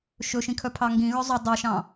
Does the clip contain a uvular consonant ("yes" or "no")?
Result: no